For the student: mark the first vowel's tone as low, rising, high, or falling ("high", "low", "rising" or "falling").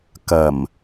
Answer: low